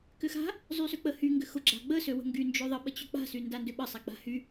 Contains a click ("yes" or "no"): yes